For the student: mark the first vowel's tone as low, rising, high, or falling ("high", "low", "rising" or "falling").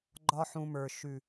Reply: high